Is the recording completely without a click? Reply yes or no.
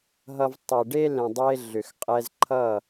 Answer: no